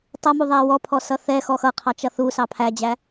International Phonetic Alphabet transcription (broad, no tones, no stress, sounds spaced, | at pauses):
tˤ ʌ m u ðˤ æ w ɔ pʰ ɔ s ʌ θ ɛ x ɔ x ʌ qʰ ɑ t͡ʃ ʌ θ u s ɑ pʰ æ d͡ʑ æ